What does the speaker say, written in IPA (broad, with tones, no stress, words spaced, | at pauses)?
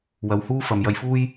wɐ˨˧whuː˥ fɐ˨mjɐ˧jfuː˥j